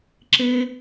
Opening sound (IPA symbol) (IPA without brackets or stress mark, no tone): ǁ